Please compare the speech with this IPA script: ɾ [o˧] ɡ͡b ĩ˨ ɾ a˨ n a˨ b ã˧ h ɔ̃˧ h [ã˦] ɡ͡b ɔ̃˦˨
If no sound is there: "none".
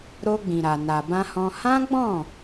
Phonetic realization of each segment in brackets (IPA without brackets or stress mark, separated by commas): o˧, ã˦